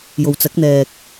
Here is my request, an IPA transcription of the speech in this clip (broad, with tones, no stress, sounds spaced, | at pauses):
j o˨ w t͡s ɐ˨˥ k̚ n̪ ɛː˨ k̚